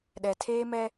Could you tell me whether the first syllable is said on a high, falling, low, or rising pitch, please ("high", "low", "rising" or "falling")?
low